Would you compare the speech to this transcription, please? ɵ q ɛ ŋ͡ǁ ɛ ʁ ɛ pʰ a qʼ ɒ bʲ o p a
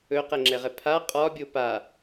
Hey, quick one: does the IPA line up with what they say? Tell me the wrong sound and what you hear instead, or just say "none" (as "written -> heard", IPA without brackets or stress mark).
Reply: none